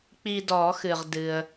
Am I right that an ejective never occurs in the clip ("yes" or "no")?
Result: yes